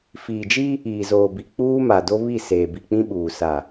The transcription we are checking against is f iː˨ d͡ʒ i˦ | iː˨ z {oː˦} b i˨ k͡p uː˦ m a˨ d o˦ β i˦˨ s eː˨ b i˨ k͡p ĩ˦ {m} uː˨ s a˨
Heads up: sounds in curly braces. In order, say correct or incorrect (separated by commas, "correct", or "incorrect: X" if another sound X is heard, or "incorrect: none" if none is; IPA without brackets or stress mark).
incorrect: oː˨, incorrect: ɓ